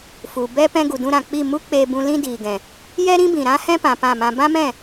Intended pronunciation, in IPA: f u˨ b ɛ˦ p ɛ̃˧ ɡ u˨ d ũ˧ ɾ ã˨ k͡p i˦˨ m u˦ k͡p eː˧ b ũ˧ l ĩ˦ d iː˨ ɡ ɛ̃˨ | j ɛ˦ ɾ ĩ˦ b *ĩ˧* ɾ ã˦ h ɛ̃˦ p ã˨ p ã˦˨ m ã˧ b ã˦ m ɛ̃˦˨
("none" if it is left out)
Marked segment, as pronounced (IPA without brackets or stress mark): ĩ˨